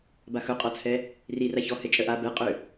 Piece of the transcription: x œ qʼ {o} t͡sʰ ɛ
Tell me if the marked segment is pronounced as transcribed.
no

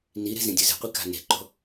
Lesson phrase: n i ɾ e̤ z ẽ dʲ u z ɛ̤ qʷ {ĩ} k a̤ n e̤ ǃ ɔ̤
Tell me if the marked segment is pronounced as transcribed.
no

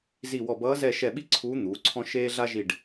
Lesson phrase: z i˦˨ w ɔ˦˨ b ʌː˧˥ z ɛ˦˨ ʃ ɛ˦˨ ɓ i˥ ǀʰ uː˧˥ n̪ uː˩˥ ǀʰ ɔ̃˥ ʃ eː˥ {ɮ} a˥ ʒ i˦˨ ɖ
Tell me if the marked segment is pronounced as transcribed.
yes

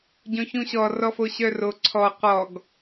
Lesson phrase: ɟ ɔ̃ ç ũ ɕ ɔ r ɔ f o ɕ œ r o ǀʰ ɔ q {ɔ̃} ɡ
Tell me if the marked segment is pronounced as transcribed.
no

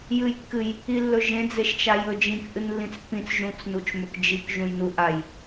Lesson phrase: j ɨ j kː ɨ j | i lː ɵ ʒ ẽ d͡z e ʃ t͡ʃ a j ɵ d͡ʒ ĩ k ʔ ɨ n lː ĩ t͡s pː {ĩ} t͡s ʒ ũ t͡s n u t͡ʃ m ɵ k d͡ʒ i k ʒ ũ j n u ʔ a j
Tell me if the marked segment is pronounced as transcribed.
yes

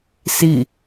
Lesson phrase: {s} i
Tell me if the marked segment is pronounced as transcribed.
yes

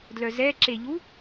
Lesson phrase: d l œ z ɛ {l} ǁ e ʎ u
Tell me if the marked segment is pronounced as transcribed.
no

